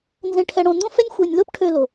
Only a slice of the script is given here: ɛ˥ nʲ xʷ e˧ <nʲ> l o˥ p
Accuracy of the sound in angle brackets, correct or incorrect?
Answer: correct